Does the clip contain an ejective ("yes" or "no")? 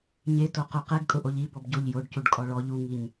yes